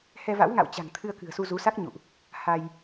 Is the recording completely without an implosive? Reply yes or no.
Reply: yes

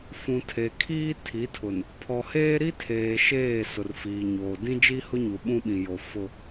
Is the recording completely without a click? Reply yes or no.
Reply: yes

